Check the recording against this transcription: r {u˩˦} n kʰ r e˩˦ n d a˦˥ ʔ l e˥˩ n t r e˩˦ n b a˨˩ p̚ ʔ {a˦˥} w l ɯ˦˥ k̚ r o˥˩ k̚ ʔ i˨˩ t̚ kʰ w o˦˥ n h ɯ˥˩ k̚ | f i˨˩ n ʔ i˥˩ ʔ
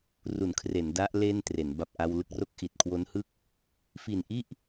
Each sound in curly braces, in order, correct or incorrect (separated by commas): correct, incorrect